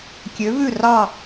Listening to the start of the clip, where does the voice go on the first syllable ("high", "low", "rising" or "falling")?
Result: rising